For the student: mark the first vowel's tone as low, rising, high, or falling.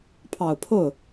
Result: low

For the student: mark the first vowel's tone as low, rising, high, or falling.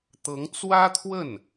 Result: rising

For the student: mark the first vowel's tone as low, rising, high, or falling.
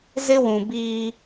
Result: high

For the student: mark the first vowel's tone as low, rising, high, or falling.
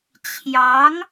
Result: rising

